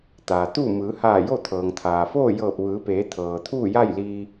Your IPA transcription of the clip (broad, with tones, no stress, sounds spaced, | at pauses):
t̪ aː˩ t̪ uː˥˨ m ɯː˩˧ h aː˧˩ j o˥˨ t̪ʰ ɤː˩ ŋ t̪ʰ aː˩ f oː˥˨ j ɤː˧˩ p̚ ʋ ɯː˩˧ p eː˩˧ t̪ʰ ɤː˩ t̪ʰ uː˥˨ j a˥˨ j l iː˧